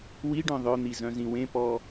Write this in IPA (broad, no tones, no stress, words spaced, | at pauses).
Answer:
wiɖœ̃ ðˤœn̪i zœ̃zĩwẽpɔ